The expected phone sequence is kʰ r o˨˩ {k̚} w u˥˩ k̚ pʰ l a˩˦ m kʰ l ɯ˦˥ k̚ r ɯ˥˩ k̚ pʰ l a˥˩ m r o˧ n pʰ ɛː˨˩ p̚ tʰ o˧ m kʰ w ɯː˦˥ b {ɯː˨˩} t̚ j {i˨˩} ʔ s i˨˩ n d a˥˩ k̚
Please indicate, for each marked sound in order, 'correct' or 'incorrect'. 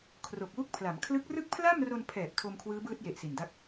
correct, incorrect, incorrect

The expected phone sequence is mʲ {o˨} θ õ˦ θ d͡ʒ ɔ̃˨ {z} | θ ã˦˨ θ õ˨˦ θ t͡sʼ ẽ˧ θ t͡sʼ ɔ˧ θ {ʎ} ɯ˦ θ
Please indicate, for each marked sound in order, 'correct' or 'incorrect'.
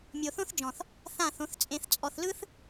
correct, incorrect, incorrect

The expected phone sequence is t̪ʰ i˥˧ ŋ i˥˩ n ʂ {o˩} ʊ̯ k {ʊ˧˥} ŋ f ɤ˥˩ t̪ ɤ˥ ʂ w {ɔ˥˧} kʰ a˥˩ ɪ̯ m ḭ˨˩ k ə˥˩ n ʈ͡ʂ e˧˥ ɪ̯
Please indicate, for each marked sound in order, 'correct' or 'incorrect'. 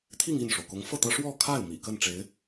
correct, correct, correct

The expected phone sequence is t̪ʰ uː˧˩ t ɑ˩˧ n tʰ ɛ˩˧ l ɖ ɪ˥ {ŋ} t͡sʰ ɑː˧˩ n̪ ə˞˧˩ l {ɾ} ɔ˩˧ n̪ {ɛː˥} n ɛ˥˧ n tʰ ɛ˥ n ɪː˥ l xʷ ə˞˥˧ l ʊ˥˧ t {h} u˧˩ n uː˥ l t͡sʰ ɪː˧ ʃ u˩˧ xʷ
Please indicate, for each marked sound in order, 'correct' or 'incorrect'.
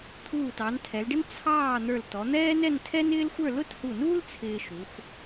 incorrect, incorrect, correct, correct

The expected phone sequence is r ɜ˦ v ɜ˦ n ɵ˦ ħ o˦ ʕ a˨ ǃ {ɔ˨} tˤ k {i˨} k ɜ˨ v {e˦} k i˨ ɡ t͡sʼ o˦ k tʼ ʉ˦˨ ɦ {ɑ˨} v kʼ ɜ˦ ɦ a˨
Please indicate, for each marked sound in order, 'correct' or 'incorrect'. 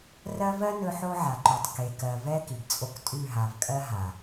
incorrect, incorrect, incorrect, incorrect

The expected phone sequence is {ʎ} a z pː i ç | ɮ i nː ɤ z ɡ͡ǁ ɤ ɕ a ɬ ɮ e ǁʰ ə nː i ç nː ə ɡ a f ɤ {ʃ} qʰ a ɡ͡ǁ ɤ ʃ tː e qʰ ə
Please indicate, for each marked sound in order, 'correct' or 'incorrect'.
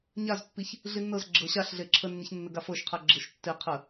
incorrect, correct

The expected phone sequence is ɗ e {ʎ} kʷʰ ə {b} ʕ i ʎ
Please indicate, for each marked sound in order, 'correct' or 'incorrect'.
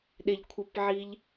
correct, incorrect

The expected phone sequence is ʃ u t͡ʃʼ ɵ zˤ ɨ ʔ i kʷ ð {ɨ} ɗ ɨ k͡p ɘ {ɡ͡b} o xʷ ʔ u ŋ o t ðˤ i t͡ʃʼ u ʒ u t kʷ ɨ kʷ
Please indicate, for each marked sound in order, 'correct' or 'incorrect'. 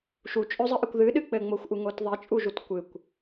correct, incorrect

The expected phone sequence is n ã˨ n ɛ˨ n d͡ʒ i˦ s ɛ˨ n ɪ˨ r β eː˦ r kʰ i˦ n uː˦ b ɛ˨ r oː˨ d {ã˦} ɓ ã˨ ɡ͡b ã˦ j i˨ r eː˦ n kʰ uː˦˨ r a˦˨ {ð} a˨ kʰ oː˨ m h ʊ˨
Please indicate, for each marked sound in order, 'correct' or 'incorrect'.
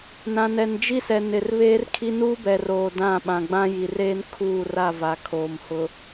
incorrect, incorrect

